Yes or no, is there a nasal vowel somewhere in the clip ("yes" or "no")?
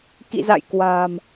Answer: no